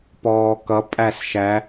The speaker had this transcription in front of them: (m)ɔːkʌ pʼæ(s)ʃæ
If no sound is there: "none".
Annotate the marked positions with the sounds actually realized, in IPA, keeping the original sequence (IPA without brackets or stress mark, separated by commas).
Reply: p, s